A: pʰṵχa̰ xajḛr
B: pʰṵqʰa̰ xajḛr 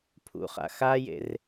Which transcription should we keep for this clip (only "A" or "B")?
A